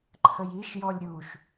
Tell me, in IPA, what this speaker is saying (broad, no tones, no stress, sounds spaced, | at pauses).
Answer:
ǃʰ ə j i ʃ j ɔ lʲ ɾʲ u ʃ